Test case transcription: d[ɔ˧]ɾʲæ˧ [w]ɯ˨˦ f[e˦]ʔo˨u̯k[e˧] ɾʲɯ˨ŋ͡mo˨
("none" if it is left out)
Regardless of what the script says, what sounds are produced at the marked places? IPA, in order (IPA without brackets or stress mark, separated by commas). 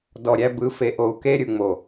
ɔ˨, b, e˨, e˧